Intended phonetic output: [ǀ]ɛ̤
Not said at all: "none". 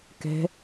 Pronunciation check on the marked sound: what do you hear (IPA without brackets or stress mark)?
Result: k